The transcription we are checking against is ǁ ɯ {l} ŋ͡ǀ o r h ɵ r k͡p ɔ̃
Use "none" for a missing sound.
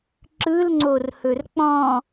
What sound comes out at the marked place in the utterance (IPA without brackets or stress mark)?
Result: l